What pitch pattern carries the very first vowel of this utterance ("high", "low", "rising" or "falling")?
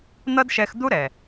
high